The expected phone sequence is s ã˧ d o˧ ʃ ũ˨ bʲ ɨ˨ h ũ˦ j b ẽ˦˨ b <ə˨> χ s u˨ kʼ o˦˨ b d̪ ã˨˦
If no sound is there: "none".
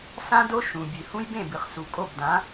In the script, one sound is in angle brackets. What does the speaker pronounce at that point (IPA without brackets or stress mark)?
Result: ɨ˨